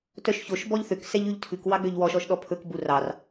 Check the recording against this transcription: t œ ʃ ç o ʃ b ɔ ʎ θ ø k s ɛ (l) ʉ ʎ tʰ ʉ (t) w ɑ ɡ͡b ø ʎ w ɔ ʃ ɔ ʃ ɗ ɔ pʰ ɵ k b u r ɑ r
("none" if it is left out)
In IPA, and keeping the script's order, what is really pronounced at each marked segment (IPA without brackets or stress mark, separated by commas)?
ʎ, k